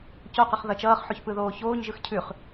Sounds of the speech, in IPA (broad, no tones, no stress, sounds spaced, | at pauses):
c o q ʌ χ ð ʌ t͡ʃ ʌː χ ħ ʉ ç p ɯ ð oː ç oː ɲ ʒ ɯ x cʰ ʉ χ